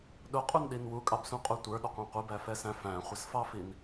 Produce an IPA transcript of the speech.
ɗ ʊ qʼ u n ɗ i n w u kʼ ɑ b s ũ qʼ u tʷ ə˞ ɗ ʊ qʷ ɑ̃ qʷ i b æ f ɛ s æ̃ f æ̃ χʷ ʌ s f ɑ f i n

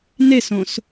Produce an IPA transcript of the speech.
n e s õ s

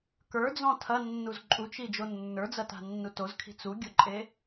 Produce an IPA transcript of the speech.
k ə˞ d͡z ɔ̃ tʰ ɐ nː u z ǃʼ u t͡ʃ i d͡ʒ o nː ə˞ d͡z ɐ t a̤ nː u t o z kʰ i̤ t͡s u ɡʲ o ǃʼ e

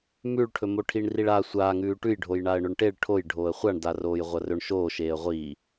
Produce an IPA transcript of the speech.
m ʉ ɭ ʈʰ ɵ m o ʈʰ i ɳ r i ɭ a sʷ aː ŋ ʉː ʈ ʉ j ɖʱ o j ɳ a ə̯ ɳ ɵ ɳ ʈ e ɭ ʈʰ o j ɖʱ oː ə̯ χʷ a ɳ d a r oː j ʁʷ ɐ r ɵ ɳ ʃ oː ʃ eː ə̯ ʁʷ iː

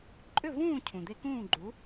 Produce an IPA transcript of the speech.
ǃʼ ʏ˥˩ v ũː˥˩ cʰ ũ˩ d̪ e˧ k ũː˥˩ ɡ͡ǃ u˩˥

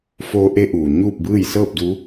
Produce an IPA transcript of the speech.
f oː˧˥ ʔ e˧˥ ʔ uː˩ ɲ uː˥˨ p̚ b ɯː˥˨ j s ɤː˥˨ p̚ d u˧˥

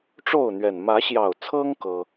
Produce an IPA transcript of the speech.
ʈ͡ʂ o˥˨ ʊ̯ n̪ ɥ ɛ˨˩ n m ä˨˦ ɕ j ɑ˨˩ ʊ̯ t͡sʰ ɤ˦ ŋ k ɤ˦

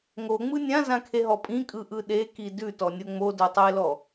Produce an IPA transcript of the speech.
ŋ o ŋ͡m ɯ nʲ ã z ã kʰ e ɦ ɔ pʼ ĩ kʼ ɯ ʔ ɯ ɗ e k i d ʉ t ɔ nʲ o ŋ͡m o d o tˤ e l ɔ

